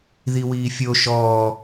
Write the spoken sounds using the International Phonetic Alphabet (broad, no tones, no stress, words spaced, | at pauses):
ðiwiːfʲo ʃɔː